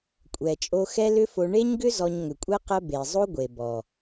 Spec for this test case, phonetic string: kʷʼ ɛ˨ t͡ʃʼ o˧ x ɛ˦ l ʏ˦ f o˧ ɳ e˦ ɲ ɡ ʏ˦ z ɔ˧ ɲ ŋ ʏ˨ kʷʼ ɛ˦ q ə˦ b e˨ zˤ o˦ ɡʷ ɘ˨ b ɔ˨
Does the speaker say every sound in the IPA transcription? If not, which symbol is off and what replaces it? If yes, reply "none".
ɘ˨ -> e˨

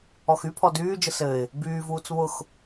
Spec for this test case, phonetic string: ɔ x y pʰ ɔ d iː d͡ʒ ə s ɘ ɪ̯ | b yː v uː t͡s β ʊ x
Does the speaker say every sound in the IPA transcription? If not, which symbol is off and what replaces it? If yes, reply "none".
iː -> yː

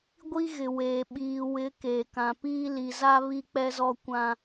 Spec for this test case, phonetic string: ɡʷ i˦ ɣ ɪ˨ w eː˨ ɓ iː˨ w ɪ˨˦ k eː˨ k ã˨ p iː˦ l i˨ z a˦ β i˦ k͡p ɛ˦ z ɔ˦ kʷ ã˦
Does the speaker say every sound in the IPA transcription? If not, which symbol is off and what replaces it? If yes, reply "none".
none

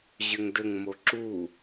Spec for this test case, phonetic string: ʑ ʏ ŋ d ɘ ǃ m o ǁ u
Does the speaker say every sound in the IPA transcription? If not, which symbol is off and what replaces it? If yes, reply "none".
ǃ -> ŋ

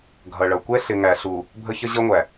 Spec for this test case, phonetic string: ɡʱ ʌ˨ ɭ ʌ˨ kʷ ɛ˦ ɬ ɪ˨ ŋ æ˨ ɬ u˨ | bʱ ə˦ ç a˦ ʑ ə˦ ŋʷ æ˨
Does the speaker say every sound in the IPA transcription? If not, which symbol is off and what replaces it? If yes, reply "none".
a˦ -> ə˦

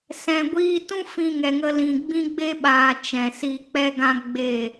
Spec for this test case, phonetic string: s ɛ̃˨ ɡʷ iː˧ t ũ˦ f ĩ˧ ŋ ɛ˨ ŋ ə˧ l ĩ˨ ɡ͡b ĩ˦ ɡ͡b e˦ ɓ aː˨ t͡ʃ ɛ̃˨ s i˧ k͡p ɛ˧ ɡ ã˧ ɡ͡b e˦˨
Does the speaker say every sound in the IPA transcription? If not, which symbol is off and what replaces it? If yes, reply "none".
none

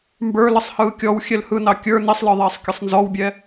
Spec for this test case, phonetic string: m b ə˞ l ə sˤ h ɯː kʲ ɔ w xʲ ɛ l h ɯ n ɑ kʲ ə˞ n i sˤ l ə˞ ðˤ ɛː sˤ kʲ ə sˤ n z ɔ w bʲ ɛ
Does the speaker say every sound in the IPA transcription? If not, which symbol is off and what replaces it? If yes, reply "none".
none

